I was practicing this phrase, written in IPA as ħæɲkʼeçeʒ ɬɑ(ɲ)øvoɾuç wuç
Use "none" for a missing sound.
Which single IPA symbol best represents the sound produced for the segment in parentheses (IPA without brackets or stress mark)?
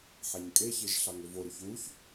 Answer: ŋ